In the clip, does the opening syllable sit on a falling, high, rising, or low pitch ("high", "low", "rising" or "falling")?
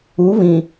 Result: rising